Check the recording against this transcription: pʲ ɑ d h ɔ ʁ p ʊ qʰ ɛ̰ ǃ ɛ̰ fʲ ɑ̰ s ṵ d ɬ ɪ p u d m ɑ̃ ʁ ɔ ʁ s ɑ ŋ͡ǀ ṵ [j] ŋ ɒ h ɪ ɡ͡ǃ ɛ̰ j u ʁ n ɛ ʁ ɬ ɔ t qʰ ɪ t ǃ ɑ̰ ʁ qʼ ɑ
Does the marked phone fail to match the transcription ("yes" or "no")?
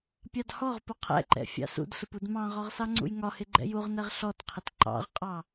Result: no